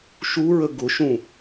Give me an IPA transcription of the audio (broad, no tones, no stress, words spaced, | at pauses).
ʃuɹə ɡʊʃũ